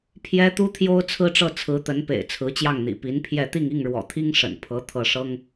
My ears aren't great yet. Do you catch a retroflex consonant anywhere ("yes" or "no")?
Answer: yes